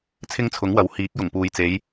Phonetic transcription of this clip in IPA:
t͡sʰɪ˥ŋt͡sʰʊ˨˥ŋwɐ˨˥w hiː˨˥k̚jʊ˨˩ŋpuː˨jt͡se˨˧j

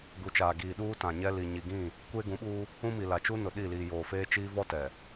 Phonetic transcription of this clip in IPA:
ɡu˨t͡ʃaː˨ɡiː˨ ɗuː˦tã˨ɲɛ˦li˨ ɲi˨ɡĩ˦˨ | kʷeː˦ɡũ˨˦ɓuː˦ | ũ˦mi˨ la˨t͡ʃu˦nʊ˨ ɗi˦˨liː˨joː˨feː˦ t͡ʃiː˦vɔ˦ tɛ˨

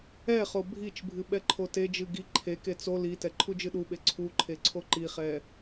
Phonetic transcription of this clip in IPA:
ɛχo bʱit͡ʃbʱɨ ɓɛǃʰoted͡ʒɨ ɡi ǃʰeke t͡so litɛ ǃʰud͡ʒɨɗuɓe ǀʰuǃʰe ǀʰoǃiχɛ

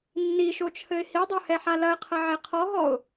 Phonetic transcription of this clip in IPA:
nːiʃot͡ʃʰɘɪ̯ hidˤohɛħa lɐɪ̯qʰɐʕe qʰɔɦɔʊ̯

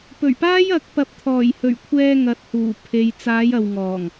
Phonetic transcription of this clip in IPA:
pɵ˨˩ɥpaː˥j ɐ˨˥k̚ pɐ˨˥p̚t̪ʰɔː˨˩jhɵ˨˩ɥkʷʰɛː˧ ŋɐ˨t̚ huː˨˩pʰe˨j t͡saː˨˧j ɐ˨wŋɔː˨˩ŋ

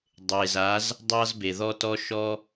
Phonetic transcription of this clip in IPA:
dˤe˨za˨˦z | dˤɑ˦zbe˨ðɔ˦tɔ˦ ʃɔ˦

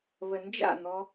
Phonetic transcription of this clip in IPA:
βənd͡ʒa̰n̪ɔ

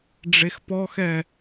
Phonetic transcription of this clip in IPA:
ɖ͡ʐexpɔxɛ

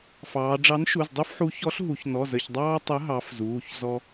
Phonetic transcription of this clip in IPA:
fɑː˩˧ ɖ͡ʐɑ˨˥nʃu˩˧˩zdˤu˦fħu˨˥ çɔ˨˥ɬɦu˩˧çnɔ˩˧˩z ə˩˧˩çdˤɑː˦ tˤə˨˥ ɦɑ˨˥fzuː˩˧˩ç zɔ˦

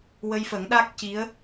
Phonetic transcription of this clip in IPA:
wə˧jfə˨˩˦ŋɗa˦˥k̚ ci˧˥ə̯

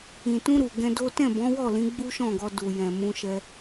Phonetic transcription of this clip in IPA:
ĩ˨tũ˧ ɾu˨ɡɛ̃˧do˦ tɛ̃˦˨bɔ̃˨˦wɔ˦˨lĩ˨˦ ɡ͡bu˦ʃɔ̃˦˨ɡɔ˧ du˨jɛ̃˨ mũ˧ʃɛ˧

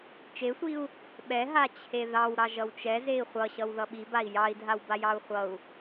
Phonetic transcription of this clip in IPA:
t͡ʃesʷiu̯ | ɓɛɦa t͡ɕʰeðɑw ɾɑʒʌwt͡ʃɛ zei̯χʷʌɕʌw ðʌɓibai̯ jɑi̯dʱawbajɑu̯ χʷʌu̯

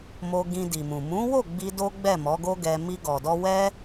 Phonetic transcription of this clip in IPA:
mo˧ ɡĩ˧di˨mũ˨ mũ˨˦wo˦˨ ɡ͡bi˧do˦ɡ͡bɛ˦˨ mɔ˨˦ɡo˦ ɡɛ˧ mi˧ɡɔ˨dɔ˧ wɛ˦

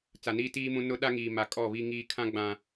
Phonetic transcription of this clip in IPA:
t͡sa˨niː˦tiː˦mũ˦ nʊ˦ ɗa˦ŋiː˨ ma˨kʼɔ˦˨ βi˦ ŋiː˦ kʰã˦ ɡ͡bã˨

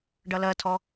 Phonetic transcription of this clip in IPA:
ɖʌlɜtʰɔ

